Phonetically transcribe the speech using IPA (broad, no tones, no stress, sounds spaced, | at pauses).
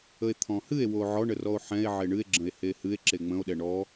ə e̯ t̪ʰ ɔ̃ h ɨ e̯ w o ʕ ɔ ɳ ə r ɔ o̯ ħ ɛ̃ e̯ ʕ e ɳ ɨ e̯ ɡ͡ǁ ə̃ e̯ h e h ɨ e̯ ǁ e ŋ͡m ə̃ o̯ ɗ ɛ ɳ ɔ